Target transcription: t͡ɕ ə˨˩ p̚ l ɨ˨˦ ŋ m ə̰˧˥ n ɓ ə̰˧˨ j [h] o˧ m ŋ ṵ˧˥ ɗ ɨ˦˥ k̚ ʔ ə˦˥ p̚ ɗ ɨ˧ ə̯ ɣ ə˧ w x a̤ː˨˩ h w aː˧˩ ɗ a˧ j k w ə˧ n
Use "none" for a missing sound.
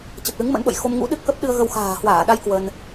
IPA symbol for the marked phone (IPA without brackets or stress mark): x